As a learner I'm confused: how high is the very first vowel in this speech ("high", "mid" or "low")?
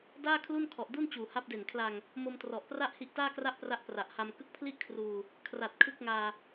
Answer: low